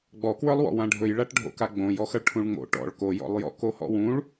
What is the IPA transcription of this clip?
ɡ͡b ɔ k w ə˞ lˠ w ɔ̰ w ã ɖʱ ɵ j ɭ a ʈ ɖʱ o̰ k a ɡ͡b õ j ɔ x ʌ ɭ ʈʰ ũ ɭ ŋ͡m o̰ ʈ ɔ̰ ɭ k o j ɔ̰ lˠ j ɔ̰ k o h ɔ̰ w ũ ɭ

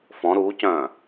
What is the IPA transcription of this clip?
f ɔ̃ ɾ uː c œ̃ː

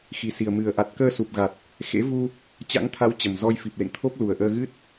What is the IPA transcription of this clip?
x i˨˩ s i˨˩ ə̯ m ɨ˨˩ ə̯ ʔ a˨˩ t̚ k əː˧ s u˨˩ p̚ ɣ a˨˩ t̚ | x ḛ˧˥ v u˧ | t͡ɕ a̰˧˥ ŋ t̪ʰ a˨˦ w t͡ɕ ə˨˩ m z ɔ˧ j f i˨˩ p̚ l ḛ˧˨ ŋ t̪ʰ o˦˥ p̚ l u˨˩ ə̯ ʔ əː˧ ɣ ɨ˦˥ t̚

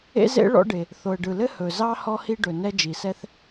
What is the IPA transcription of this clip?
ḛ˥ z ḛ˥ ɭ ɔ̰˥ ɖ e˩ | θ o˩ ə̯ ɖ ɯ˩ l ɘ˥ h ɵ˩ z ɑ˥ h ɔ˥ h i˥ ɖ ɵ˩ n ɛ˥ d͡ʒ i˩ s ɛ˥ θ

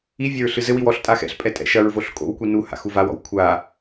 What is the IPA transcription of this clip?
i vʲ ɐ ɹ ɬ ɨ z ɘ w i w ɔ ɬ tʼ a x ɛ̰ ɬ pʼ ɛ tʼ ɛ̰ ʃ ɐ ɹ v o ɬ kʼ o̰ w kʷ i n u h a̰ x u v a w ɔ̰ w kʷʰ a

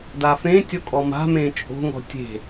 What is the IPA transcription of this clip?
d a f ẽ tʲ o kʼ ɔ m a̤ m ẽ t͡ʃʼ o̤ ŋ ɔ̤ tʲ e̤

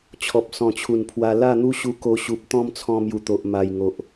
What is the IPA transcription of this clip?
t͡ɕʰ ɔ˨ p̚ s ɔ̃˨˩ t͡ɕʰ u˨˩ n pʰ w a˧ l a˥˧ n̪ u˦ ɕ u˧ k o˧ ɕ u˨ p̚ t̪ ɔ̃˦ m t͡sʰ ɔ̃˧ m j u˨˩ t̪ o˨ ʔ m a˨˩ j ŋ o˨ ʔ

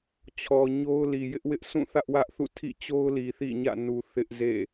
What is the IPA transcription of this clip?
t͡ɕʰ ɔ˨ ɲ o˦ ʊ̯ l i˨ j ɪ˦ ʔ w ɪ˦ ʔ s ũ˦˨ θ ä˦ ʔ w ä˦ ʔ θ ṵ˦˨ tʰ ḭ˦˨ t͡ɕ o˦ ʊ̯ l i˨ θ ḭ˦˨ ɲ ä̰˦˨ n u˨ θ ɪ˦ ʔ z ḛ˦˨

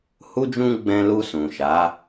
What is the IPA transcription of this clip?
h u˧ d͡ʒ ũ˧ ɡ͡b ɛ̃˧ l u˧ s ũ˨ ʃ a˨˦

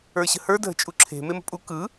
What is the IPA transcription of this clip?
ə˞ ɕ ə̤ h ə˞ dʱ ə̤ t͡ʃʼ u ǁʰ e̤ m e m ə̤ pʼ u k ɯ

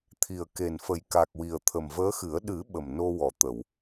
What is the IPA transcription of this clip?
t̪ʰ i˨˩ ə̯ k e˨˩ n f ə˨˩ j k a˨˩ k̚ w i˨˩ ə̯ t̪ʰ ə˨˩ m v əː˧˥ x ɨ˨˩˦ ə̯ ɗ ɨ˨˩˦ ɓ ə˨˩ m n o˧ w ɔ˨˩˨ t̪ ə˨˩˨ w

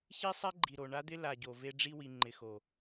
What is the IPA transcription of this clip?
ç i˦ sˤ ɛ˦ ɡ͡ǃ i˨ ɾ o˨ ɳ a˦ d̪ ɪ˦ l a˨ ɟ o˨ v e˦ ɖ͡ʐ i˦ w i˨ ŋ͡ǃ ɪ˨ x o˨

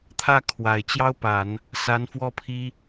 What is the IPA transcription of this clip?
t̪ʰ ä˥˩ kʰ w a˨˩ ɪ̯ t͡ɕ j ɑ˥ ʊ̯ p a˨˩˦ n | s a˧˥ n f w ɔ˥˩ pʰ i˥

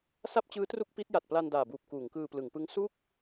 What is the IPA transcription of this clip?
s a˥˩ p̚ t͡ɕ ɯː˦˥ t r u˥˩ k̚ p i˦˥ t̚ j a˨˩ t̚ p l a˧ n d aː˨˩ b uː˨˩ p̚ k uː˩˦ ŋ k ɯː˧ p l ɯ˩˦ ŋ p ɯ˦˥ ŋ s u˥˩ k̚

